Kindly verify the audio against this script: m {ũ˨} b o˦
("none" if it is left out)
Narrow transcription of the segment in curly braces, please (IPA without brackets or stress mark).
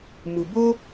u˨